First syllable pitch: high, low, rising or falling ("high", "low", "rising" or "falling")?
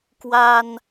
low